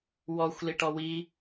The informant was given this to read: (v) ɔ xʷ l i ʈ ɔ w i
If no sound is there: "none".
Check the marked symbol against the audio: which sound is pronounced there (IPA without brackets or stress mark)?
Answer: w